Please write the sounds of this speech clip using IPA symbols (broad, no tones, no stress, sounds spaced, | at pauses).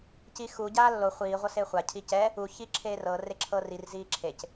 c i x u ɟ aː lː o χʷ iː ʁʷ ɤ s eː χʷ a cʰ i c ɛ | u ç i ǁʰ eː r ɤ r e ǁʰ ɤ r i r z iː ǁʰ e c